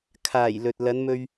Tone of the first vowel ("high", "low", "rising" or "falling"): low